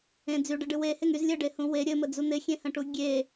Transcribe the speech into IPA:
ẽ d͡zyɖɘɖɨ weheŋ yz lʲɘɖehũ we ɾʲɘməd͡zu n̪ɪxʲẽhə̃ʈu ɡʲe

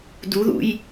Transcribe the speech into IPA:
duðṵj

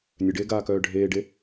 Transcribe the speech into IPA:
nʲœɖeːɡaːkœː ɖʱeːɖe

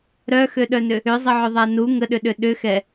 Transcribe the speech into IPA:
ɾœxøɗœnʏ | ʏzˤəʕʏðˤa nu ŋəɗʏɗʏ ɗʏxɛ

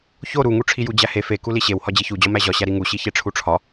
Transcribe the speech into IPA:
ço ɾuŋu ʈ͡ʂʰijud͡ʑæhe fe kuliɕew hɒd͡ʑiçud͡ʑɒ mæʑɒɕæ ɾiŋuɕi çeʈ͡ʂʰuʈ͡ʂʰɒ

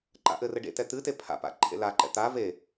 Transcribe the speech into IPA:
ǃa̰ʔɘrɘ ɖḛtɛ t̪ɨte pʰa̰pa̰ ǃʰḛlaǃɛ̰ t̪a ve

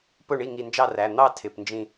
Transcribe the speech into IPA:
pʊ˥˩ɳi˥˩ ŋi˧˩nd͡ʒɑ˥˩ræ˩˧˩ n̪ɑ˥˧tʰɪ˩˧˩pnd͡ʒĩ˧˩

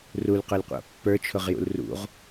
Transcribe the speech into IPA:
rulqʊlqʷa̰ pːə˞t͡ʃʰʊʁjṵl rṵʁ

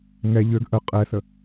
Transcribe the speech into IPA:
ŋɛ ʎøɡ ʔə qʼɛθə

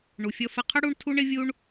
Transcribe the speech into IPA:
ɳu˨fʲʌ˧fə˧qʰə˦ ɽu˦ɳtʰu˦ɳɪ˦vʲu˦ɳ

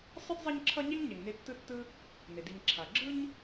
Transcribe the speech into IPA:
sˤɯ˥dzˤi˦ɲǁʰʌ˦ɲe˥ŋ ɲɛ˨ŋne˦tːɯ˥tːɯ˥ | ne˩di˨ɲǁʰa˩ ɡ͡ǁɯ˦ɲ

